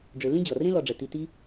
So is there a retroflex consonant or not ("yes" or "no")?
yes